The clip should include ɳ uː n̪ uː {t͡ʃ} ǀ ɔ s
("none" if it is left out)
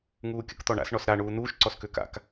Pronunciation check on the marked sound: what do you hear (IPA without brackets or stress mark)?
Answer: ʃ